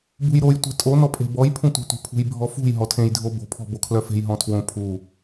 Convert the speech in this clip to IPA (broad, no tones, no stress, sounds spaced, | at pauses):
b ṳ j ɾ o j tʷ e̤ tʼ o n ɔ pʼ e̤ b ɔ j pʰ ũ tʷ e̤ tʷ e̤ pʰ ṳ j bʱ ɔ f ṳ j ɦ ɔ tʰ ẽ j dʱ o b o̤ pʰ ɔ̤ b o kʰ l œ f e̤ j ɦ ɔ̃ tʰ w õ pʰ u